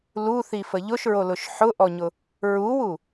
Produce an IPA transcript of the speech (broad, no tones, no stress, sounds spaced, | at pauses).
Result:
l u θ i f ə ʎ ʊ ʃ ɹ o l ʊ ʃ ħ ʊ ʔ ɔ ɲ ʊ | ɹ u w u